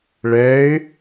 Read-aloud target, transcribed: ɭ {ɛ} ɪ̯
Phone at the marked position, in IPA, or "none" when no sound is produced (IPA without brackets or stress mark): ɛ